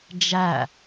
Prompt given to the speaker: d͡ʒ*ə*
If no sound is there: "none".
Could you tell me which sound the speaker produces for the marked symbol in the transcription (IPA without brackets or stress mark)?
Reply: æ